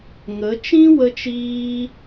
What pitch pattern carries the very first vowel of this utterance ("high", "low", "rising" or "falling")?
rising